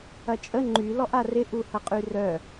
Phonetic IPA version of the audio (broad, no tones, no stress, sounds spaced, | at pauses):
ɐ t͡ʃʼ ə ŋ͡ǃ y l ɔ ʔ a r ɪ ʔ u h ɐ qʼ y r œ